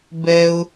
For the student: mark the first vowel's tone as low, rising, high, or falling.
high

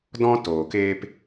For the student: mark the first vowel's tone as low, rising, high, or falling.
high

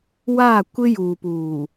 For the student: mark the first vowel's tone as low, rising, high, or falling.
falling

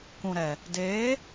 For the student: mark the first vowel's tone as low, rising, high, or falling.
low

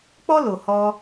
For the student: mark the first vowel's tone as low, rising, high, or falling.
high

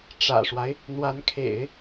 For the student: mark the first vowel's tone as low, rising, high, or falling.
low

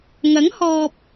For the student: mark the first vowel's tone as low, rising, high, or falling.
rising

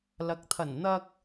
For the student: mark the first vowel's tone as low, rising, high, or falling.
low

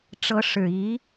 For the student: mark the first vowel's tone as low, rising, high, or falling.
rising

